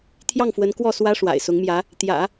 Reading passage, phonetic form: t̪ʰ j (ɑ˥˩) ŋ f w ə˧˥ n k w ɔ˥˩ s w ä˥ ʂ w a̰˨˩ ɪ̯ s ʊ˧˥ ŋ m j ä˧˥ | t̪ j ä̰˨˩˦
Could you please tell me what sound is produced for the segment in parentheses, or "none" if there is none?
ɑ˥˩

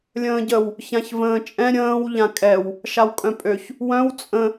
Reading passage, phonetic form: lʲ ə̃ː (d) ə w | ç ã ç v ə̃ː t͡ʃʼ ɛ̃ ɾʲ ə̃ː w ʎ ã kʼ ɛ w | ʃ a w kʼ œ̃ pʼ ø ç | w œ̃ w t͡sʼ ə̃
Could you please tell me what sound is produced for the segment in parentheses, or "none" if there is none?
ɟ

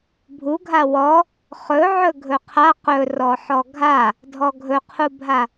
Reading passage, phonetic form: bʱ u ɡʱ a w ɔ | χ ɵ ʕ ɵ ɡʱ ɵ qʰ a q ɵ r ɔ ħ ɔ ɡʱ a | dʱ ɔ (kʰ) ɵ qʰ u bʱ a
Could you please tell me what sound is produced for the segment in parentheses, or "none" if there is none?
ɡʱ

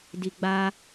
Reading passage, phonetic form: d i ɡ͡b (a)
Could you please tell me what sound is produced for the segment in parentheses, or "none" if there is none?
a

